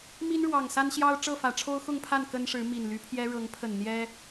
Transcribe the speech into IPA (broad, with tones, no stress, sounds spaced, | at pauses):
m i˦ n ɻ w ɑ˨˩ ŋ s a˦ n ɕ j ɑ˦ ʊ̯ ʈ͡ʂ ɤ˥˨ f ä˨˩ ʈ͡ʂʰ o˦ ʊ̯ x ʊ˥˨ ŋ pʰ a˥˨ n k ə˦ n ʂ ɻ̩˨˦ m i˨˩ n l y˨˦ pʰ j ɛ˦ ɻ ɤ˨˦ ŋ pʰ ə˨˩ n n̪ j ɛ˦